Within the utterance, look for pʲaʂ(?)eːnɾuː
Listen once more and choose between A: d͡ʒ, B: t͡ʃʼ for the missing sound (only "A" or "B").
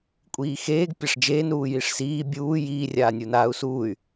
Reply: A